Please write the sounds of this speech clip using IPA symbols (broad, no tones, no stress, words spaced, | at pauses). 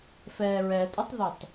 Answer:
fɛːɹɛtʼʊtˤðøtˤ